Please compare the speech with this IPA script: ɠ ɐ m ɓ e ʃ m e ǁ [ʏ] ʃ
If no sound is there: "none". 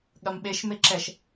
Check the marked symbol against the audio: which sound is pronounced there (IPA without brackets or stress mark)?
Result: ɛ